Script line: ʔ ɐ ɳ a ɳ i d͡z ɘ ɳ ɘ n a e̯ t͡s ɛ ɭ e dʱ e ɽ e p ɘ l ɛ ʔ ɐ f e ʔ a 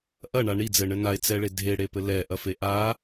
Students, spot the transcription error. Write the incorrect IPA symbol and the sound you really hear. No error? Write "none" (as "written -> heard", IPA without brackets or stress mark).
none